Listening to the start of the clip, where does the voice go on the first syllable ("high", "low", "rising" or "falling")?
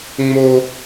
high